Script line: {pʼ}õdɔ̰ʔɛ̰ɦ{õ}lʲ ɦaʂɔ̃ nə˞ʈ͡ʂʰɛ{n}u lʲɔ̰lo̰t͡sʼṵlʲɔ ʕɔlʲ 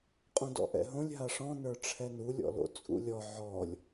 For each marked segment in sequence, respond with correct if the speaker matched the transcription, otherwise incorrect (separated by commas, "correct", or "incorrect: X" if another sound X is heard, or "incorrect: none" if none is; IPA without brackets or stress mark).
incorrect: qʼ, correct, correct